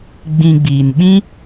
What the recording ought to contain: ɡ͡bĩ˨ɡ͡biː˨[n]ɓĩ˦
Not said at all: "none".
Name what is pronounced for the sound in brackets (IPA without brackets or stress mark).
n